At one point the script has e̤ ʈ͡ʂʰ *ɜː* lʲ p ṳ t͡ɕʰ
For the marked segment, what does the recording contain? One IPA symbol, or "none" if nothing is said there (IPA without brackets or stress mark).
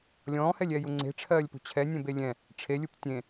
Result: ɜː